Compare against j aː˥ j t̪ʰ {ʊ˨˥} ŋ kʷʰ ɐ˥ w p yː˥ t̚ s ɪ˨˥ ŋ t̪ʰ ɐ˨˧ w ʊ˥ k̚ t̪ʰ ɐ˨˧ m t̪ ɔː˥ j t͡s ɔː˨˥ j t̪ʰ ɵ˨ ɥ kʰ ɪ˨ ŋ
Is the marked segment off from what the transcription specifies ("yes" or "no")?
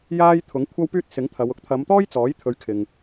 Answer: no